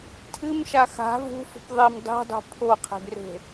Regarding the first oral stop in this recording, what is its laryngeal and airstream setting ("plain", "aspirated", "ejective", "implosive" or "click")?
aspirated